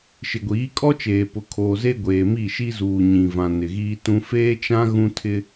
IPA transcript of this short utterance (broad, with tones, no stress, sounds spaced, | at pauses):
ʃ ɪ˨ ɡʷ iː˨˦ kʼ ɔ˦ t͡ʃ eː˨ p ʊ˨ kʰ oː˨ z e˦ ɡʷ eː˨ m i˦˨ ʃ i˦ z uː˨ ɲ ĩ˨ v ã˨ n ɪ˨ ɣ iː˦ t ũ˦ f eː˦ t͡ʃ ã˦ ɣ ũ˦ tʰ ɪ˦